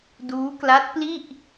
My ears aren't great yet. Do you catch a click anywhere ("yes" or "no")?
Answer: no